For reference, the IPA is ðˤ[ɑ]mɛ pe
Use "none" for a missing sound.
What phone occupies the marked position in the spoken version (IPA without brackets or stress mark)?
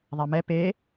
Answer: a